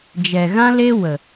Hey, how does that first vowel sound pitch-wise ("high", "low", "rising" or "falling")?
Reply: low